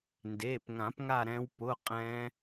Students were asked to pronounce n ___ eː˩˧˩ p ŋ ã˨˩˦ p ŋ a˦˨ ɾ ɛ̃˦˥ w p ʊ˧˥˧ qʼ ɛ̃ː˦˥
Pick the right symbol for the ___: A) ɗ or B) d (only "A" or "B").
B